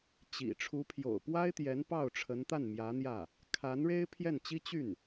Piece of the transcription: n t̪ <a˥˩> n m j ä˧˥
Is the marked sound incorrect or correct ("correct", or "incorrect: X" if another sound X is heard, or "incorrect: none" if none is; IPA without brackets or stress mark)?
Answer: correct